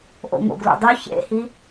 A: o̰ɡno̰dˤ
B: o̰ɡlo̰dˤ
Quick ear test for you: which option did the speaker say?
B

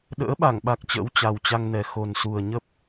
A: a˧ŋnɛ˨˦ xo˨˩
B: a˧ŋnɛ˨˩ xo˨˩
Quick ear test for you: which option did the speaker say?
B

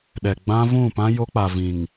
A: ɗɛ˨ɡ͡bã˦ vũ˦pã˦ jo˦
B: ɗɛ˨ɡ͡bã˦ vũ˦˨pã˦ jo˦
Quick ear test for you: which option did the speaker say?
B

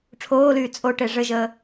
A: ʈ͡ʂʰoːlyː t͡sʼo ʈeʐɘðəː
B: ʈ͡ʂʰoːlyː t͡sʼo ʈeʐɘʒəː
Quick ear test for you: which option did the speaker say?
B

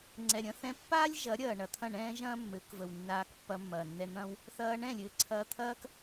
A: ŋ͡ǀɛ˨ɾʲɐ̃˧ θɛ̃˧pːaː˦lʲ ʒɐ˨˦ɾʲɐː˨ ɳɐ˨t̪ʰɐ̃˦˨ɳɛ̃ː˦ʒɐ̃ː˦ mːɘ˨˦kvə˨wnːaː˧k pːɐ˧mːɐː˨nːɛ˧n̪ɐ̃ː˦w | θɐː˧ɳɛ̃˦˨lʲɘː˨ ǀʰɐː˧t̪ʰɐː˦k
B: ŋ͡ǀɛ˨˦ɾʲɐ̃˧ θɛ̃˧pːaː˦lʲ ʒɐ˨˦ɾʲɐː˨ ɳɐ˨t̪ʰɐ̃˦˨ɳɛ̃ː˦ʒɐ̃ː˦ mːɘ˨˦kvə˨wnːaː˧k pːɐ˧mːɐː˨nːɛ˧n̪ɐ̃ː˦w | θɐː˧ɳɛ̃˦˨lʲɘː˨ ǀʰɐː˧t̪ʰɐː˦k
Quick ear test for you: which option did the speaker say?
A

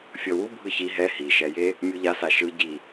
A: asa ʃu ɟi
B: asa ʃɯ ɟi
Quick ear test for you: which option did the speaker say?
B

